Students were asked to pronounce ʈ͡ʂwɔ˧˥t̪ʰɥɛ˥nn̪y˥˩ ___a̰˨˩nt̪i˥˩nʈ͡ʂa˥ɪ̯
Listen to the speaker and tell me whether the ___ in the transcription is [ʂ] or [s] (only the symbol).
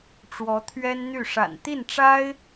ʂ